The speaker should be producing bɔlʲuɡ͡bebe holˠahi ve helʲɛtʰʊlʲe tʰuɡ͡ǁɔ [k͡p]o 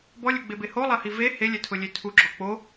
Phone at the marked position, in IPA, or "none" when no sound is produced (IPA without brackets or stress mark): k͡p